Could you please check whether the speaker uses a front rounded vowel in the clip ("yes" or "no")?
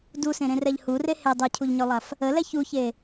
yes